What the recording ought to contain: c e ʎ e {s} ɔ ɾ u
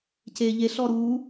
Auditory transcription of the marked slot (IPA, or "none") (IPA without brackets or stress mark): ɬ